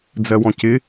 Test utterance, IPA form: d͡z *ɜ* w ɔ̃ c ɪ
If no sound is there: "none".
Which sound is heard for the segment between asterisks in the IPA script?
ɜ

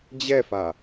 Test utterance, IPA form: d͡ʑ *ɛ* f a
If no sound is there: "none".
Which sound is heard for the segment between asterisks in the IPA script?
ɛ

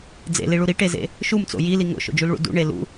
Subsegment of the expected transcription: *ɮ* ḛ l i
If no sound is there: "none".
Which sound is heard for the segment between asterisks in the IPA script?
d͡z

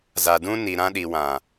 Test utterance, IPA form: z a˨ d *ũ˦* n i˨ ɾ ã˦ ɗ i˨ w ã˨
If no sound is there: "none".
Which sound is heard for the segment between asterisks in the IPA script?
ũ˦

